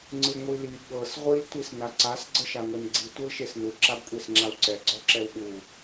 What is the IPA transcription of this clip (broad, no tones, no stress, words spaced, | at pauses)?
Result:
ŋ͡ǀɯŋʷili ɠɤs ʁʷil tʷisnaǀas ɡ͡ǀɤʃaŋʷɛnɡ͡ǀi tʷɤlʃesnu ǁabkʷʼesŋ͡ǁawǀɛ ɡ͡ǀɔǁɛwɠu